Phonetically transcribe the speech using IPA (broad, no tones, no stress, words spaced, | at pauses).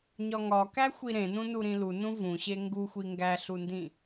ɲɒŋɒ kæxʷiɾẽnũ nuɾĩlu nũvũɕe ŋɡuxʷi ŋɡæɬundĩ